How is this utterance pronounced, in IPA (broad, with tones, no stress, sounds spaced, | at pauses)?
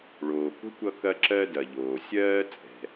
ɭ oː˩ k o̤˥ kʷ ʌ˧ k ɐ˥ ǁ ɜ˥ d ɐ˩ ʎ oː˩ sʲ ɜː˥ t͡sʼ ɛ̤˩